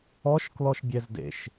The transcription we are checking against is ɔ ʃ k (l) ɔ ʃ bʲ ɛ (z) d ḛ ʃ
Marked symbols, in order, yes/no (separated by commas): yes, yes